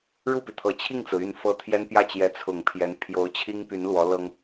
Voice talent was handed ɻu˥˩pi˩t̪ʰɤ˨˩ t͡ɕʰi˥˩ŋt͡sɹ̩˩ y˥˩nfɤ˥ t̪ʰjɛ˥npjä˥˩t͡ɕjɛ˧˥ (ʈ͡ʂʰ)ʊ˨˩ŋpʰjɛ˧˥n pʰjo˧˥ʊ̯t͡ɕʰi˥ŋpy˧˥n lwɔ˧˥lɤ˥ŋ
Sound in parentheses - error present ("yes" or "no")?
yes